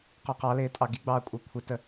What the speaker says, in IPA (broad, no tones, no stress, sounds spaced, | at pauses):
q ɔ q ɑ l ɪː tʼ ɑ ɡ i ɡ͡b ɑː kʷʼ əː kʷʰ ɪ t ə